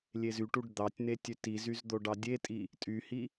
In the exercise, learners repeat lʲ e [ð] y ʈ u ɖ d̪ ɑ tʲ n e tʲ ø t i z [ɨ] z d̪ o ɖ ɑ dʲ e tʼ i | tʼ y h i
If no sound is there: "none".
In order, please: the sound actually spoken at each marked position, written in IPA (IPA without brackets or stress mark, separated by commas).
z, y